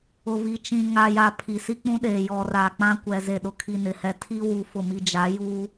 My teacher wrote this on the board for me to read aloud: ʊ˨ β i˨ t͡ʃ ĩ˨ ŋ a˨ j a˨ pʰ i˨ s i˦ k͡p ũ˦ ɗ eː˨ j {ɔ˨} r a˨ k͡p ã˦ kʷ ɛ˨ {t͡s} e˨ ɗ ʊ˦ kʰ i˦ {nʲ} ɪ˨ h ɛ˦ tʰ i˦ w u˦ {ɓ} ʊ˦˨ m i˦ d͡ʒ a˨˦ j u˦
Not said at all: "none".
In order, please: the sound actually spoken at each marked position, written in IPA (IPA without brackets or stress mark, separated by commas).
ɔ˨, z, n, f